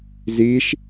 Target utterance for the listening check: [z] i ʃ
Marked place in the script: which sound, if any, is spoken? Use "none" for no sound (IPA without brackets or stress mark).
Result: z